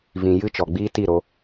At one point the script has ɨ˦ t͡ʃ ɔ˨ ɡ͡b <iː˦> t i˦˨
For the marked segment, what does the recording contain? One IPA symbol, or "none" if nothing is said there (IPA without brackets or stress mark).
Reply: iː˦